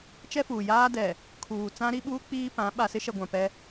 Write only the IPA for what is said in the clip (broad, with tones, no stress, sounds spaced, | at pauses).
t͡ʃ ɛ˦ f uː˨ j aː˦ d ɛ˨ | kʰ uː˨ t͡s ã˦ ɾ i˦ ɓ uː˦ k͡p iː˦ p ã˨˦ ɓ a˨ s ɪ˦ ʃ ɛ˨ ɡʷ ã˨ p ɛ˦